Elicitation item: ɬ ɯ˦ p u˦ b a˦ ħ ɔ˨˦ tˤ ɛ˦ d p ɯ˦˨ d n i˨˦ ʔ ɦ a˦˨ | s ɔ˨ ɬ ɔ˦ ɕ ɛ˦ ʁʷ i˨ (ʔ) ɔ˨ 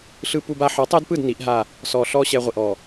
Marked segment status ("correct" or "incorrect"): correct